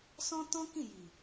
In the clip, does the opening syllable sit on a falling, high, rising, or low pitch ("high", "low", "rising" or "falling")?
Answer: high